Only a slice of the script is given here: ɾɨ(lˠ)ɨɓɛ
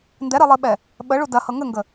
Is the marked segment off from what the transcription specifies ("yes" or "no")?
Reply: no